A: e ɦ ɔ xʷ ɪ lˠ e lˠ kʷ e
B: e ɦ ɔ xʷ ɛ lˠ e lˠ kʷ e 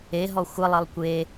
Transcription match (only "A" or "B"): A